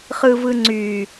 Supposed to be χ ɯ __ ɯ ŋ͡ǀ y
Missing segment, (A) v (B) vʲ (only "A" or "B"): A